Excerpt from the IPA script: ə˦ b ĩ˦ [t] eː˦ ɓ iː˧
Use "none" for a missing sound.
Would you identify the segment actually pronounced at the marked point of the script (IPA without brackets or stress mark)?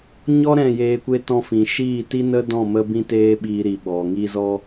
t